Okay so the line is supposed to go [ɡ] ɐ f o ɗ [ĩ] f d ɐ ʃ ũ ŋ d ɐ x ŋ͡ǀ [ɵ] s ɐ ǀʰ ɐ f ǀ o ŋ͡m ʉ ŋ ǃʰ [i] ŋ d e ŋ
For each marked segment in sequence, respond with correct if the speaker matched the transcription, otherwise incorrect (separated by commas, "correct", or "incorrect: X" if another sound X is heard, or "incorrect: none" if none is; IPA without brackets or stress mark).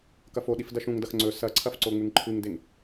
incorrect: k, incorrect: i, correct, incorrect: ɨ